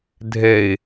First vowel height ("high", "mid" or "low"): mid